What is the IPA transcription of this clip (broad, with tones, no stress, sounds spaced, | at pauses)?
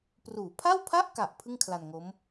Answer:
p r uː˩˦ pʰ a˥˩ w pʰ a˥˩ ʔ k a˨˩ ʔ pʰ ɯ˥˩ ŋ kʰ l a˧ n ŋ o˦˥ m